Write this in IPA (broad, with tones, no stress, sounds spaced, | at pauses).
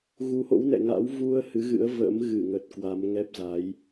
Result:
ɣ u˨˦ h o̰˧˥ w n ɛ̰˧˨ ŋ a̰˧˥ w v u˧ ə̯ h ɨ˨˦ ɣ ɨ̰˧˥ ə̯ v ə̰˧˥ m ɣ ɨ˧˩ ŋ ə˨˩ t̚ k w a˨˦ m ŋ ɛ˦˥ p̚ z a˨˦ j